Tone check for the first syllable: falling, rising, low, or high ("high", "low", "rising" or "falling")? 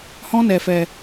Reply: high